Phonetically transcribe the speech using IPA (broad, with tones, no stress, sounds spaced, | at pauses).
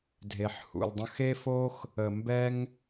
dʱ e˨ ħ h ṵ˨ l dˤ ə̃˧ x e˦ f o˦ x | ə˨ m b ɛ˧ ŋ